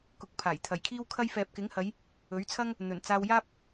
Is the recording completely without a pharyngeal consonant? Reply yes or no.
yes